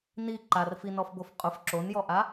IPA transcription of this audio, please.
n i ǃ a r f i n ɔ f b o f qʼ ʊ f ǁ o n j ɔ ʔ a

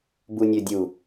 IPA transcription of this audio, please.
b u nʲ ø dʲ u

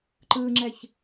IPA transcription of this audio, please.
ǃ ɯː ŋ͡ǁ ɛ ç

